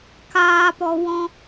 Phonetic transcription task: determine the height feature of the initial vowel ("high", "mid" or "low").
low